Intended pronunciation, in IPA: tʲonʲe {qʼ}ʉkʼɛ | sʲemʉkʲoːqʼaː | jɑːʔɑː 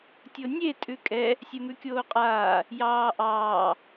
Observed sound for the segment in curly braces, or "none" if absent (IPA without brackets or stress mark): tʼ